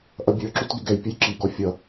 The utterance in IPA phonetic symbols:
ʔ ʌ bʲ ə˞ ǁ u t ɡ ɪ ɡ ɛ j pʲ ə j ǁ i ɡ ɔ fʲ ʌ

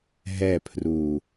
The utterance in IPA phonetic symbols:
ɦ ɛ pʰ r u

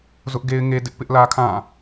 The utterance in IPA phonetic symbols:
z ʊ˦ ʔ ɡ e˦ ɪ̯ ŋ e˦ d ɪ˦ ʔ p ɪ˦ ʔ l ä˦ kʰ ã˦˨

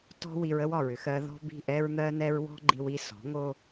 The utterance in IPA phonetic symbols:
t ɔ̤˦ w i˧ ɹ ə˦ w ɒ˨ ɹ ʏ˧ x ɜ˧ ð ɔ̤˦ b i̤˦˨ ʔ ɛ˦ ɹ n̪ ɜ˦ n ɛ˦ ɹ w ɔ̤˦ ɡ͡ǃ i˧ w i˧ s ɔ̤˨˦ ŋ o˦

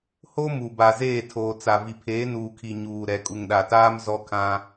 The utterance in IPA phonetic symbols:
h o˦ m u˨ b a˨ z eː˦˨ tʰ oː˨ t͡s a˨ v i˨ pʰ eː˨˦ n uː˨ kʰ i˨ ɲ uː˨ ɾ ɛ˨ kʼ u˨ ŋ ɗ a˨ t aː˦ m z ɔ˦ kʰ ã˦

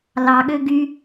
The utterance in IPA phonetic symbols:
l ɑ ɠ ø ɡ y

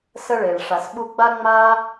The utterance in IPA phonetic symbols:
s ə˦ ɭ e˨ ɭ ʂ a˨ s ɓ u˧ ɡ͡b a˦ ŋ͡m a˦

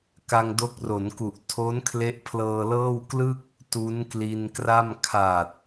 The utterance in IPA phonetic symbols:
k a˧ ŋ d o˦˥ k̚ r o˩˦ n k u˨˩ ʔ tʰ o˦˥ n kʰ l e˦˥ ʔ pʰ l ɤː˧ l ɤː˥˩ w k l ɯ˥˩ k̚ | t u˦˥ n k l i˧ n k r a˥˩ m kʰ a˨˩ t̚

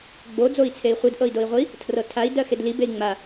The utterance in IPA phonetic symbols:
ɡ͡b o d͡z o i̯ t͡sʰ e i̯ χʷ i d ʔ ɤ i̯ d o i̯ ʁʷ i | tʰ r ɤ tʰ a i̯ d ɜ x e d l i b e i̯ ŋ͡m a

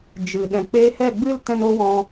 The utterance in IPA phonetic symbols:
d͡ʒ ɨ˨ ɗ ɛ̃˨ k͡p eː˧ h ɛ˦˨ ɡ͡b ɨ˦ l t ɛ̃˦ n oː˦ w ɔ̃˧

